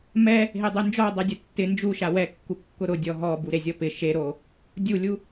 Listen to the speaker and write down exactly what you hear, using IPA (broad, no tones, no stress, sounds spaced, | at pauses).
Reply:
m ɛ | ɦ e dˤ o n d͡ʒ ɔ dˤ e dʲ ʊ tː ɪ n d͡ʒ u ʃ a w ɛ kː u kː ʊ ɾ ʊ dʲ ɔ ɦ ɔ b u ɾ e zʲ ɔ p ɪ ʃ e ɾ o | dʲ u lʲ u